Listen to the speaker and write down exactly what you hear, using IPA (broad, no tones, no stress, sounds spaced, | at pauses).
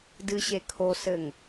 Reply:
d ɨ ɕ e kʰ o s ɘ ŋ